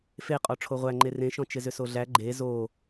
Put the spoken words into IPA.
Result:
f e qʼ ɔ ʈ͡ʂʰ o ʁʷ æ ŋ͡ǃ e r ẽ ʃ ɔ̃ t͡ʃ ɪ z ʏ s o ɮ æ ɡ͡ǃ e z o

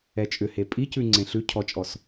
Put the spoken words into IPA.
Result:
ɛ t͡ʃʼ ʏ h e pʼ i c ʉ ŋ͡ǀ ẽ ɬ ʉ cʰ ɔ t͡ʃʼ ɔ s

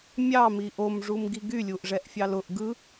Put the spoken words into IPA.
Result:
mʲ ɑ m i ʔ o m ʐ u m ɡ i ɡ y lʲ u ʔ ʐ ɛ ʔ fʲ ɑ l ʊ ʔ ɡ ɯ

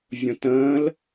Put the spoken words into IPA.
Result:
vʲ õ t ə̃ː l

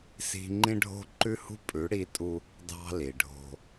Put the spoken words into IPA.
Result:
s i̤˦ ŋ͡ǃ ĩ˦ ɖʱ o̤˦ ǃ ʉ˦ h ṳ˦ pʼ ʉ˨˦ ɽ i˦ tʼ u˦ | d ɑ̤˦ l i˨ ɖʱ o̤˦

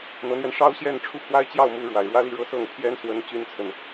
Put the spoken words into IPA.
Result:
n̪ ɤ˧˥ n̪ ɥ ɛ˧ n ʂ ɑ˥ ʊ̯ ɕ j ɛ˥˧ n ʈ͡ʂʰ u˥˩ pʰ w a˥ ɪ̯ t͡ɕ j ɑ˥˩ ʊ̯ m u˧˥ ɻ w a˨˩ ɪ̯ ɻ w ä˥ l i˥˧ ɻ ɤ˥˧ s ɤ˥˩ ŋ pʰ j ɛ˥ n s w ə˧˥ n t͡ɕ y˥ n t͡sʰ ə˨ n

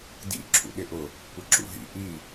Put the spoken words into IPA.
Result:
d ḭ ǁʰ ṵ ɗ ɪ ʔ ʊ | kʷ ʌ ǁ ṵ ɦ ḭ ʔ i

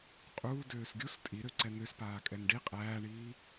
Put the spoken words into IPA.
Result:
qʼ uː d øː s ɡʲ u s tʼ i ɾ ø ǀ ɛ n̪ ø s p aː kʼ ɛ n ɖ i qʼ æː ɳ iː

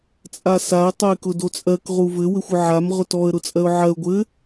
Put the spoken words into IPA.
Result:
t͡sʼ a s a ə̯ tˤ o ɪ̯ k ʊ d o t͡sʼ ɜ k ʁ u v ɘ w ɘ xʷ ʊ ʕ a m ʁ ʊ t ɔ ə̯ ɾ ʊ t͡sʼ ɜ ʊ̯ ʕ ɜ ʊ̯ ɡʷ ɘ

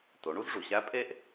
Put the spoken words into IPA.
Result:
t o˩˧ ɳ u˥ z ʐ u˩ ɕ æ˧˥ pʼ e˥ ʔ

